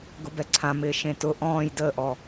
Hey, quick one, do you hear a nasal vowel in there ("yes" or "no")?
yes